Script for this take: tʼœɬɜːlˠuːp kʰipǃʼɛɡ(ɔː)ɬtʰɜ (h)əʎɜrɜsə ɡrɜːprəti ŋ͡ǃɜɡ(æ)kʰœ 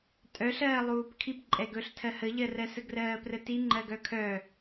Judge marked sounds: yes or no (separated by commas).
no, yes, no